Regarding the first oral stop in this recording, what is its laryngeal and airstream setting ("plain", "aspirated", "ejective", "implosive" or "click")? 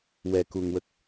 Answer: plain